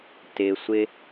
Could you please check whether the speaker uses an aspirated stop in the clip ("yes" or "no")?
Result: no